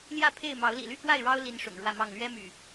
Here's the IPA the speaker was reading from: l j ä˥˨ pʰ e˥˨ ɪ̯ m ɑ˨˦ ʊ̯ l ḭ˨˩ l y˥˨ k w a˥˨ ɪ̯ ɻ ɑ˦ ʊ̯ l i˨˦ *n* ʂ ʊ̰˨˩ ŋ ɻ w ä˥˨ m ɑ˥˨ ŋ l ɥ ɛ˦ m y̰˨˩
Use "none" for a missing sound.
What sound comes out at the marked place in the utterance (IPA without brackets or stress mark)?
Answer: n